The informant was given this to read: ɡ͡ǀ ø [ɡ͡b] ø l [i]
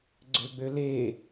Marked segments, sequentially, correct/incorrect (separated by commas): correct, incorrect